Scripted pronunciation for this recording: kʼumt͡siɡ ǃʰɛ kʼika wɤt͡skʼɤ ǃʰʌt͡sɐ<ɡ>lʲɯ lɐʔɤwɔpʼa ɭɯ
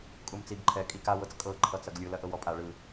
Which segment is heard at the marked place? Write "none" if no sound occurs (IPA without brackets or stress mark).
ɡ